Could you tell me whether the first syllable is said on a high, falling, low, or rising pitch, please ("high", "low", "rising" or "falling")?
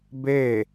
falling